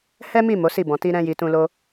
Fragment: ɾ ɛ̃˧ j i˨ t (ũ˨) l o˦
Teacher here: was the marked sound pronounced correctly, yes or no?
no